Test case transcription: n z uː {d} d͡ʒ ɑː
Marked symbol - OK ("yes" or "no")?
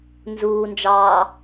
no